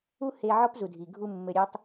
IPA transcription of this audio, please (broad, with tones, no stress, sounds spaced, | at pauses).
u˦ h e˧ ʕ ɔ˦ p z u˨ dʱ i˨ ɡʱ u˧ mː ɘ˨ ɾʲ e˧ tˤ